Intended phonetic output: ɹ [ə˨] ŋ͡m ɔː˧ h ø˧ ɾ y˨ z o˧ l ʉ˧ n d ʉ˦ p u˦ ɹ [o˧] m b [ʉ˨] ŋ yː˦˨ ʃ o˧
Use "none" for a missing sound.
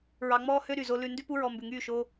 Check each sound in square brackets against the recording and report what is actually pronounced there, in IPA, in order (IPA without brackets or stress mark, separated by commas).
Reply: ɑ˨, ɔ˧, ʉ˨